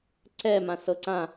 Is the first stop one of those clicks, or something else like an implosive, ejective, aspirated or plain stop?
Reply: click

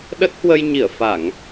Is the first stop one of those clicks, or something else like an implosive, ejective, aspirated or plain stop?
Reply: implosive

